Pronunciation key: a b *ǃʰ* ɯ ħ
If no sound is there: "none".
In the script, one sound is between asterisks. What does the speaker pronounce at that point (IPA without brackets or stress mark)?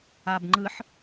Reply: ŋ͡ǃ